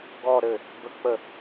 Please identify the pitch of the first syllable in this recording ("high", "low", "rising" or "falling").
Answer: falling